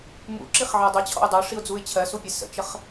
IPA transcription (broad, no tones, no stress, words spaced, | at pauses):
mṵǁiχʕɜ dˤət͡ɕʰɔ̰ʊ̯ dˤəʊ̯ʂiʊ̯d͡zuɪ̯ t͡ɕʰɜsupʲɛ sə̰t͡ʃəχ